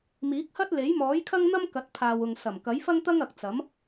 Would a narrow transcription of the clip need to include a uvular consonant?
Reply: no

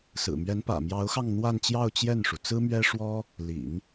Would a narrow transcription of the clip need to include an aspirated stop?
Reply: no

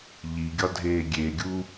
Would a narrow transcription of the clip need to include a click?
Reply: no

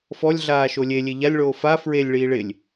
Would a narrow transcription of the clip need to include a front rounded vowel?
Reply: no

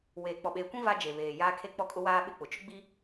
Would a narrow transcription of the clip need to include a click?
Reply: no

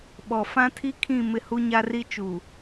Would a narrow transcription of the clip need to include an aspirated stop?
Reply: yes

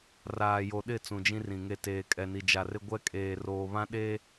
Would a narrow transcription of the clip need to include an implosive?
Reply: yes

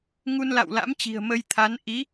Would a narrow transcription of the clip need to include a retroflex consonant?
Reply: no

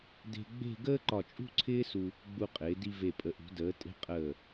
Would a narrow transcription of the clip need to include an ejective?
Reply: yes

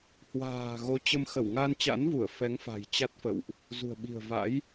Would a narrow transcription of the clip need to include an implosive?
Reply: yes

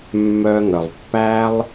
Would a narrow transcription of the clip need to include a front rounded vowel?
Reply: yes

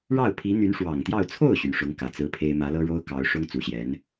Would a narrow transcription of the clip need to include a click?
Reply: no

